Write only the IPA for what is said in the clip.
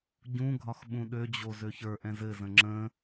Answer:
ɟũɡʱɒx ɓũɗød͡ʑo zøçə˞ʔɛ̃z ɘzə̃ ŋ͡ǁə̃

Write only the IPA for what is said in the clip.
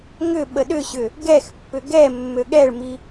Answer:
ŋʏ ɓəɗʏɕʏ | ɡɛxpːʏ ɡɛ mːøɠɛɭmi

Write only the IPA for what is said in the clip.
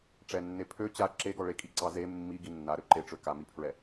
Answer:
ʈ͡ʂɛnːe pʰø t͡ɕa ǁeɡɔ ɭekʼiǀɑ ze mːiɡi nːaɾø ǃeʈ͡ʂø kamipʰɹɛ

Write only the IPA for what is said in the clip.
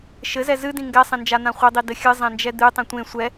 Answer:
ʃɘzɛ zɨdĩ ŋɡɛsˤẽnd͡ʒan̪ã χʷɘdˤidɘ xʲɨzˤɛ̃nd͡ʒɛ d̪ɨtˤĩ tʷẽ sʷɛ

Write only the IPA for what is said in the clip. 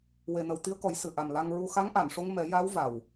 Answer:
we˨˩nə˨˩w t̪i˧ə̯kɔ˨˩˦j sɨ˨˩˨ʔa˨˩m la˧ŋɹu˧ xa˧˥ŋʔa˨˩˨nʂo˧ŋ mɛ˨˩˦ja˧˥w va˨˩w

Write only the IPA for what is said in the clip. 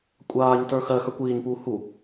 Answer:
kʷʼaːɲtə˞ xɜxə˞kʷ iːɲpuː hu

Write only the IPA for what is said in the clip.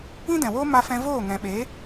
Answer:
ĩ˦dɛ̃˨woː˦ ma˧ fɛ̃˧ voː˦˨ŋɛ̃˨ɓe˨˦

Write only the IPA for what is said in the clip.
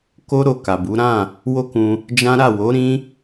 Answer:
ko˦ɾo˧ ka˨bu˨˦ ɾã˦˨ | wo˦kũ˧ | d͡ʒã˦ɾa˦˨ wo˨˦ ɾĩ˦

